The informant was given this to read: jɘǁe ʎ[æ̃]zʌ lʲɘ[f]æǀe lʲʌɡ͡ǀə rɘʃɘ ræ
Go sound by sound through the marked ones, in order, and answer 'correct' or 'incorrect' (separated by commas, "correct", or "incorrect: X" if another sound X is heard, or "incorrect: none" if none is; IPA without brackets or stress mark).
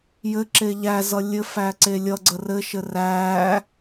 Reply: incorrect: æ, correct